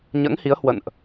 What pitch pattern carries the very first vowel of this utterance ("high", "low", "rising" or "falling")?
rising